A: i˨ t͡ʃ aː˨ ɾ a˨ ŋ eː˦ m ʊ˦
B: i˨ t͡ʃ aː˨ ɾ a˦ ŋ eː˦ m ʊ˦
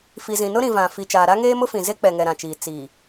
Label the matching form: B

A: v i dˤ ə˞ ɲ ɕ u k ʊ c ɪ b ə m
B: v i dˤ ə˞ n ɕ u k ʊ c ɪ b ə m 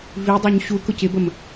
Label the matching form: A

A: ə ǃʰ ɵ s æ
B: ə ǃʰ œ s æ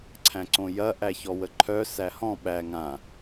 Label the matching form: B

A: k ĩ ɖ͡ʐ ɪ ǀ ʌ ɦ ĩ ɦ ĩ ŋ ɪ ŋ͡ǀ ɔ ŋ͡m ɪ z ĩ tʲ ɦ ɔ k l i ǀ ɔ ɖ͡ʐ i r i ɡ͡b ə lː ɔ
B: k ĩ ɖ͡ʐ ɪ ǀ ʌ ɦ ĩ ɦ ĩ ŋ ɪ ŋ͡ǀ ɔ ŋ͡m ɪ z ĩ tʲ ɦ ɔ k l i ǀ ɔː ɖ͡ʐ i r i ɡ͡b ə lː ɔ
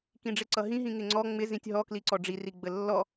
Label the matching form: A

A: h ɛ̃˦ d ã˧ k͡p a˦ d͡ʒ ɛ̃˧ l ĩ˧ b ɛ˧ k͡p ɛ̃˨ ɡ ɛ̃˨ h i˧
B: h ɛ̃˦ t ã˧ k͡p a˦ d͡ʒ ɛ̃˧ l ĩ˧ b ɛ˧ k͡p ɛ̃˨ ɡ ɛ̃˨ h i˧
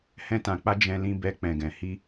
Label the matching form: B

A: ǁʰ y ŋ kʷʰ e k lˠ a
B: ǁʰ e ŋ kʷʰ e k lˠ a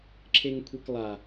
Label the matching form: B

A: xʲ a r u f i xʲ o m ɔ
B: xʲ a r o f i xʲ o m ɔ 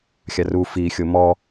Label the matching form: A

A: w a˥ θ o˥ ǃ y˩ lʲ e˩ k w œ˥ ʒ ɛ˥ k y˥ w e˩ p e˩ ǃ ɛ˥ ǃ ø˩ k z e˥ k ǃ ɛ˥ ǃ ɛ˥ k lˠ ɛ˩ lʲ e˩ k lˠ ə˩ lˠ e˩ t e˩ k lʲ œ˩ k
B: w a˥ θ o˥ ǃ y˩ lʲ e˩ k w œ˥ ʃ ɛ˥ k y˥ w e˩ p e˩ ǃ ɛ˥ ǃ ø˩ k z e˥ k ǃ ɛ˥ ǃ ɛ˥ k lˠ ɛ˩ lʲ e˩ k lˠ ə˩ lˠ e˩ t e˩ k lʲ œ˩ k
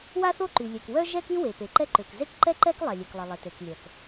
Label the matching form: A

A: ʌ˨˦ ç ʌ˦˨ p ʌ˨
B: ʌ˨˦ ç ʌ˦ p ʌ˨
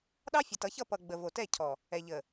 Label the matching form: A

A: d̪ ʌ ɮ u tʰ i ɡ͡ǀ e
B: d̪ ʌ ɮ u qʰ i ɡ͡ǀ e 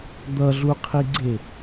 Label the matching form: B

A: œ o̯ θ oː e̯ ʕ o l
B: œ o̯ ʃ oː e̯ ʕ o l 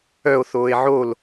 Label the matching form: A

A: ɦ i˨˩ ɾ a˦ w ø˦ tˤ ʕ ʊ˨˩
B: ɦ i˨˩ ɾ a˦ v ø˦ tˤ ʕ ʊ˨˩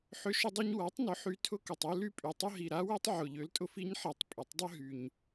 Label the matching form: A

